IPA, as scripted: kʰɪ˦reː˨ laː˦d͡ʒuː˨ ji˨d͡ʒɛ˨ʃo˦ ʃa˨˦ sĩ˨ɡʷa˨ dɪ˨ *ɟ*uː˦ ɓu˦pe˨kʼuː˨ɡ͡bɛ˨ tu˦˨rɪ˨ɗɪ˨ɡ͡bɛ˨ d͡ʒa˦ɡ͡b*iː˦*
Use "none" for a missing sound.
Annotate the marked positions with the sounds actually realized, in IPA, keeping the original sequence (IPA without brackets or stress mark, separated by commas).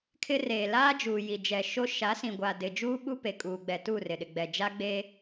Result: d͡ʒ, eː˦